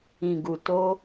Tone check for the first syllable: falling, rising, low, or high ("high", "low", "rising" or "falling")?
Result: low